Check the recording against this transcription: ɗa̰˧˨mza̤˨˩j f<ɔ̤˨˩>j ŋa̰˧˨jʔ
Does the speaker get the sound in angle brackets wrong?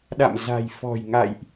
no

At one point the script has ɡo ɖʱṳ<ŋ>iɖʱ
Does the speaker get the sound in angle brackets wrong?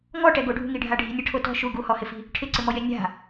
no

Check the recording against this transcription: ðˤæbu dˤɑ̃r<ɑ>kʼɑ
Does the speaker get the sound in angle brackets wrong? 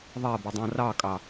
no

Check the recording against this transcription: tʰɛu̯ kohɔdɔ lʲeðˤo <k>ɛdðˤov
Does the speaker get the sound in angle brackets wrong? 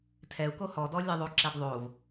yes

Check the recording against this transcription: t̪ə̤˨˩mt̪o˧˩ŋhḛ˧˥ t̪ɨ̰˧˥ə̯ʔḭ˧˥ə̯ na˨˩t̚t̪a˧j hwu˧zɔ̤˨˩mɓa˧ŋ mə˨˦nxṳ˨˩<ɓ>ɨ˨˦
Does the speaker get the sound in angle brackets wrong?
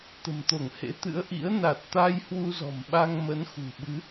no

